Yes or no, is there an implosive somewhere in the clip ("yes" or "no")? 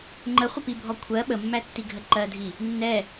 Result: yes